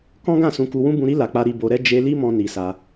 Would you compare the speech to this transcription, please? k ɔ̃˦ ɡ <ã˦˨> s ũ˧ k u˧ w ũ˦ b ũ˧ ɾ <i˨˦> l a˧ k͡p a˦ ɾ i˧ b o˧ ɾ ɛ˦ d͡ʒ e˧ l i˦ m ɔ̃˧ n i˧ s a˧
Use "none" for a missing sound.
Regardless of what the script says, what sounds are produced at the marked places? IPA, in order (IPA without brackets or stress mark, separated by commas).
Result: ã˦˨, i˦